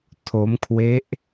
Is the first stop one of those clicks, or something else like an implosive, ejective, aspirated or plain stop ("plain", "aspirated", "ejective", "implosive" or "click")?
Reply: aspirated